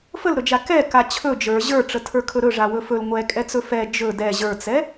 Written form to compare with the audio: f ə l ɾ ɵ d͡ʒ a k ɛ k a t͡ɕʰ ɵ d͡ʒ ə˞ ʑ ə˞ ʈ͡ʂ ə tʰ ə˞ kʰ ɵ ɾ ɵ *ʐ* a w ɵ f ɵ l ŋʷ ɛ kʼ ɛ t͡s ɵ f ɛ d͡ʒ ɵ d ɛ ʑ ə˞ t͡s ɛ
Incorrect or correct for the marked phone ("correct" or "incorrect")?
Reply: correct